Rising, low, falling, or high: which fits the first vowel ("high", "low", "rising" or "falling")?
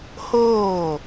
falling